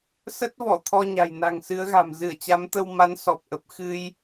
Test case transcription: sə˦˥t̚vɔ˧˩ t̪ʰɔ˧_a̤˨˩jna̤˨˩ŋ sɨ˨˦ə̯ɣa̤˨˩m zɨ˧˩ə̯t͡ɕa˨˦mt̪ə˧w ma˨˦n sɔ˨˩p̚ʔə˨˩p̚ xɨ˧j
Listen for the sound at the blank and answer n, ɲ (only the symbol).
ɲ